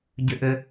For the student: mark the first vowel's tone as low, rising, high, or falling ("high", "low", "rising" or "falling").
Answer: high